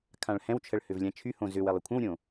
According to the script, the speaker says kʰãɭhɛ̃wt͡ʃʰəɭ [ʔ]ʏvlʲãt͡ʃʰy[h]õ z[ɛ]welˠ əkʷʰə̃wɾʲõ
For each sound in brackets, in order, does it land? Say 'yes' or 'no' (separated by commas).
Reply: no, yes, no